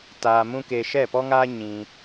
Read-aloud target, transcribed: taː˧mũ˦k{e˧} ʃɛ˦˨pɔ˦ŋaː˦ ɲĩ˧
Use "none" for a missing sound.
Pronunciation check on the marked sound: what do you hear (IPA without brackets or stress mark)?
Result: e˧